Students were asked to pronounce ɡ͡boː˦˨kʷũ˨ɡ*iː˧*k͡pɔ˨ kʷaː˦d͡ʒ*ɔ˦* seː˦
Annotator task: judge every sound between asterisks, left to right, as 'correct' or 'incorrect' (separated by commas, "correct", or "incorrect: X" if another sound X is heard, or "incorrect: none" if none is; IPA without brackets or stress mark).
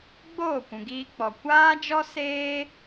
correct, correct